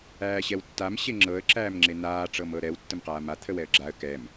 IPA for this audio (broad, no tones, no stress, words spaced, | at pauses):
æːɕɛwtːam ɕeŋ͡ǁɤə̯ ǁæːmŋ͡ǁenaː ʈ͡ʂɤmɤɾɛw tːəmqaːma t̪ʰəwɛə̯ɡ͡ǁaə̯ kɛm